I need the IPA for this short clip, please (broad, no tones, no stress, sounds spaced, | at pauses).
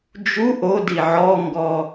d͡ʒ u ʔ o d i ʕ ɔ ŋ ɡ ɔ